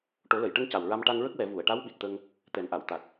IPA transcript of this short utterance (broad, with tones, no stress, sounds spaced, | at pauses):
ʈ o˨˩˦ l ə˨˩˨ j ʈ ə˧ ŋ c a˨˩ w ɹ a˧ m ʈ a˧ ŋ ɹ ə˦˥ k̚ w ɛ˨˩˦ v u˨˩˨ ə̯ ʈ a˧˥ w ɓ i˨˩ t̚ t̪ ə˧ ŋ | t̪ ɛ˨˩˦ n ʔ a˨˩˨ w t̪ a˨˩ t̚